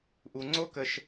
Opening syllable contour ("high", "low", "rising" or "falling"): high